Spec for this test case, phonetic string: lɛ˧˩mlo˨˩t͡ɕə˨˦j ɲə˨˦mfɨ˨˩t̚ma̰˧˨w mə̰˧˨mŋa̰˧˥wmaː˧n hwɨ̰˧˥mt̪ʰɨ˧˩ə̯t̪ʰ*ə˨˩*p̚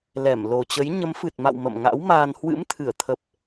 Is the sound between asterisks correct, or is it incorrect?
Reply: correct